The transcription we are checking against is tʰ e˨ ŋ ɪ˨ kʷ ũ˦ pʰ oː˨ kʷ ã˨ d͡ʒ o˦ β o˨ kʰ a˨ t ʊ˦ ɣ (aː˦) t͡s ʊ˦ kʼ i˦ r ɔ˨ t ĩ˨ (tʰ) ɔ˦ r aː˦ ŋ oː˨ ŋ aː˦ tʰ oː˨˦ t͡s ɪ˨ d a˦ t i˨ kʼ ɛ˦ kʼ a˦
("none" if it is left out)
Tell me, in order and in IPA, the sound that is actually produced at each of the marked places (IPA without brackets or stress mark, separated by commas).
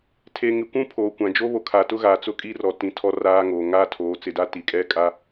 aː˨, tʰ